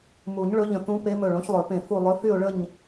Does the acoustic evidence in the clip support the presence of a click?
no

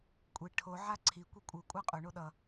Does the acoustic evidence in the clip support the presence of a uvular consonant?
yes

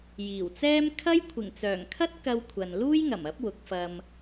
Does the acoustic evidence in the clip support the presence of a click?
no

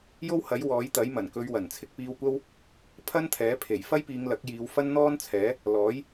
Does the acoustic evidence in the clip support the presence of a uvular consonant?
no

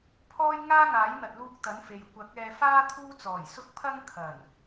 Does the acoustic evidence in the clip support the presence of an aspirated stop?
yes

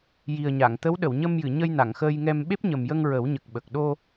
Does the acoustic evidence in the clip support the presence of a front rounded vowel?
no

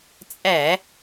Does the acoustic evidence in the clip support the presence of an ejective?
yes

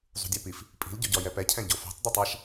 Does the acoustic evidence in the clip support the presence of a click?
no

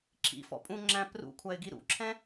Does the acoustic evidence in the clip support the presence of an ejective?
yes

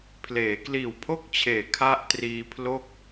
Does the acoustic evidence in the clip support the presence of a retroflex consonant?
no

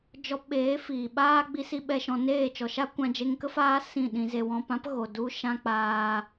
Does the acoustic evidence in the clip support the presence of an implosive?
yes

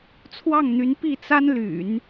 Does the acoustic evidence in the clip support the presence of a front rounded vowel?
yes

